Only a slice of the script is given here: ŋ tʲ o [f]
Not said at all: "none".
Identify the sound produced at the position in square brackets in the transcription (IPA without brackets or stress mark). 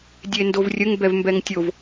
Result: v